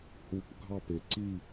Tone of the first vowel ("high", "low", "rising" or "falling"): low